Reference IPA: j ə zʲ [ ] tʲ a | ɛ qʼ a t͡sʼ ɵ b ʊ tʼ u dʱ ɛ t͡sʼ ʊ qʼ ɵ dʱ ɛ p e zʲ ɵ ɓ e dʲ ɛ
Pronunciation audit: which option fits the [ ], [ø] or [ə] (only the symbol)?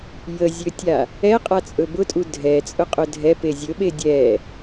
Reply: ø